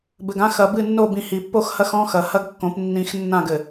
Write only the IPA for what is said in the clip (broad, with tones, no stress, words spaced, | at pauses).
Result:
bɘ˨ɡã˦ xɐ˨bɨ˦˨nːo˦˨bĩ˨ hi˨pːo˦xhɐ˦xɔ̃˦ xɐ˨hɐ˦ɡkːõ˨˦p nːĩ˨xnːã˦˨ɡɘ˨